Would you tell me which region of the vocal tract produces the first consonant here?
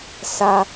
tongue tip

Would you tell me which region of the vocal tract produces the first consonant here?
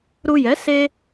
tongue tip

